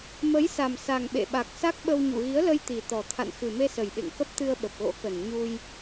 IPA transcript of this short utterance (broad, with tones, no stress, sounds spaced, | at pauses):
m ə˨˦ j s a˨˩ m s a˨˩ ŋ ɓ ḛ˧˨ ɓ a˨˩ k̚ s a˦˥ k̚ ɓ ə˧ w ɲ ṵ˧˨ ɣ i˨˦ ə̯ l ə˧ j t̪ i˨˩ t̪ ɔ˨˩ t̪ʰ a̰˧˨ n x ɨ˨˩ m e˧ s ə˨˩ j ɓ ḛ˧˨ ŋ k ə˦˥ p̚ t̪ ɨ˧ ə̯ ɓ ə˨˩ p̚ ɣ o̰˧˥ k ə˨˩ n ɲ u˧ j